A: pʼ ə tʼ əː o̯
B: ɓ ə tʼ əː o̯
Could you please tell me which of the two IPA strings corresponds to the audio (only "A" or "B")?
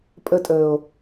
A